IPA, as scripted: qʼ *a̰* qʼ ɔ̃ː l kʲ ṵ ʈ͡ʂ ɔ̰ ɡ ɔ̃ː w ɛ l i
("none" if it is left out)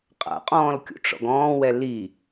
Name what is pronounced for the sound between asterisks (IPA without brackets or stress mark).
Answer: a̰